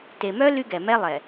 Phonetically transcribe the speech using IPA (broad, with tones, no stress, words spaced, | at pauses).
te˨mœ˦ ly˦ɡɛ˨mɛ˦lˠɛ˨